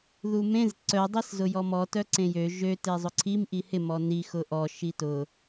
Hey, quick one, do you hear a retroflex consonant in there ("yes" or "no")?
no